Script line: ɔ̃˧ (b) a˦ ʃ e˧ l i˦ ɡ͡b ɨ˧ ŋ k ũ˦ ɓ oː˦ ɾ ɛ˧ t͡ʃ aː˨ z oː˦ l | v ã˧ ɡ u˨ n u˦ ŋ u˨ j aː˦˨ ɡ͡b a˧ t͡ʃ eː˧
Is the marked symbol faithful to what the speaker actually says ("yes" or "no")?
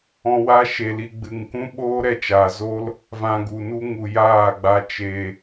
no